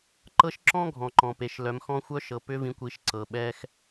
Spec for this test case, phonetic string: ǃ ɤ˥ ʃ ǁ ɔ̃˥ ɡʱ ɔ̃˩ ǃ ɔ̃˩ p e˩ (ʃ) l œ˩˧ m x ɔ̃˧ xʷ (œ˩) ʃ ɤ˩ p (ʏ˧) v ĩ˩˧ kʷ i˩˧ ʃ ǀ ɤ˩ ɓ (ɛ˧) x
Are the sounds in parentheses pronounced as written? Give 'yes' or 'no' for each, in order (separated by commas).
yes, no, yes, yes